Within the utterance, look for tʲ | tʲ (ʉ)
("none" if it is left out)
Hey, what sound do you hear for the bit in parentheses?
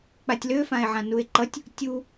u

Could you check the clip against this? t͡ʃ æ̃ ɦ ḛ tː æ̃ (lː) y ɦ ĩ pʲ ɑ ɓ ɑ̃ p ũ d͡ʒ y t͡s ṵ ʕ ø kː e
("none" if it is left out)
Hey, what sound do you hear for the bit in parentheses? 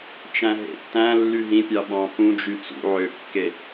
lː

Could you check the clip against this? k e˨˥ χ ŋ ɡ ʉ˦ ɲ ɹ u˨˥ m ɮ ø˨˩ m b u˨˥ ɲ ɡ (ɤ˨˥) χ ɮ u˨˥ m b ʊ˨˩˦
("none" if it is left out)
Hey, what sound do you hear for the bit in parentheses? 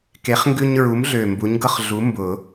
ɤ˦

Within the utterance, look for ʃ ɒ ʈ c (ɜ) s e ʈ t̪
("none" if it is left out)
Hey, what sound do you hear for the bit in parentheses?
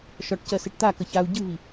ɜ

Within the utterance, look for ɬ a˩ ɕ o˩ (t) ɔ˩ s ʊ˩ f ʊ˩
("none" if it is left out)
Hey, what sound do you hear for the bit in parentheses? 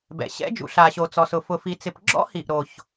t͡s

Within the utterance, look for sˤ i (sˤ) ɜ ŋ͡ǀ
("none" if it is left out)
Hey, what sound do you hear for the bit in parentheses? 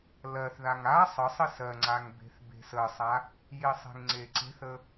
s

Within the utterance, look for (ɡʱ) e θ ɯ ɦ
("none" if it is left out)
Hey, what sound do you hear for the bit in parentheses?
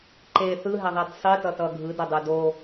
ǃ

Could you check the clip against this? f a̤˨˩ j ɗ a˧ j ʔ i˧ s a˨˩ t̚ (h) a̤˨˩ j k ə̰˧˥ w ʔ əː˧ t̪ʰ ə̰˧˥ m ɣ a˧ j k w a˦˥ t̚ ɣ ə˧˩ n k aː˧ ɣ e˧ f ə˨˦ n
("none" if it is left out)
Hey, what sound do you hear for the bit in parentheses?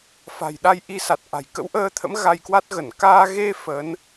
ʔ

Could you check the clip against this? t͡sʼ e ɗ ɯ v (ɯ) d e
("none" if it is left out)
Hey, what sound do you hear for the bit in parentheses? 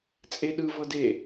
ɤ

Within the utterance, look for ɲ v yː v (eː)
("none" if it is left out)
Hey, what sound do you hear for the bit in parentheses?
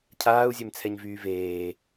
eː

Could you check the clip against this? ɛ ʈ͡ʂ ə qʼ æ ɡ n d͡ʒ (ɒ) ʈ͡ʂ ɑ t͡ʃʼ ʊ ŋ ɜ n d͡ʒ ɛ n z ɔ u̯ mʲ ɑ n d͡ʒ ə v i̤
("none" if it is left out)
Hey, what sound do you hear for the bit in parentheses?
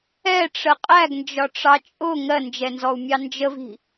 ɒ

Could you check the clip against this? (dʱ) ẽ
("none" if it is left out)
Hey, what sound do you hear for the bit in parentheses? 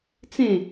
t͡s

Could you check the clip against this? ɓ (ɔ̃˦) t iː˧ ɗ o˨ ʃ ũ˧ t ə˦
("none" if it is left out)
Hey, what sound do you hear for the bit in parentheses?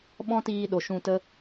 ɔ̃˦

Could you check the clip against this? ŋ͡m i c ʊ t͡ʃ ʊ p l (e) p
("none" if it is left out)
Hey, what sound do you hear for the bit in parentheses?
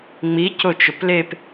e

